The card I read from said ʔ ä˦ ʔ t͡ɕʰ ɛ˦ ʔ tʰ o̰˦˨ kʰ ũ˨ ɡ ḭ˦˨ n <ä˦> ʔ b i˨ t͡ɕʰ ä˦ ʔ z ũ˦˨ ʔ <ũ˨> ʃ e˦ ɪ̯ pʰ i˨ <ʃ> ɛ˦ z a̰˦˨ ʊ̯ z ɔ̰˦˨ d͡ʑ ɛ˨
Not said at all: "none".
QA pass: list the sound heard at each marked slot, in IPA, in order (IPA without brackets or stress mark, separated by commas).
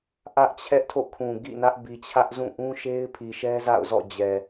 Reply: ä˦, ũ˦, ʃ